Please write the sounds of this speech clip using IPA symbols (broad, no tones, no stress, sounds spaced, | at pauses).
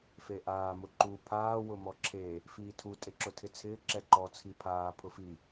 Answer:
f e ʔ aː m ʊ ǃ u pʰ aː w ʊ m ɔ ǁʰ e | f iː tʰ u tʼ e ǁ ʊ tʰ ɪ t͡sʰ ɪː ǁ ɛ ǃ ɔ t͡sʰ i pʰ aː pʰ ʊ f i